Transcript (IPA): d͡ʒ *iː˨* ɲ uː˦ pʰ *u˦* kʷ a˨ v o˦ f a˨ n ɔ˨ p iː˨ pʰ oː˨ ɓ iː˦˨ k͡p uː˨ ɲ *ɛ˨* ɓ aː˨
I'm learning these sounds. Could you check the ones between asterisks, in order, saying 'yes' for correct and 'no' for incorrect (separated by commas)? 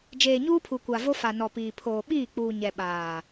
no, no, yes